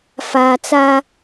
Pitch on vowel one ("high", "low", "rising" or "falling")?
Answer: low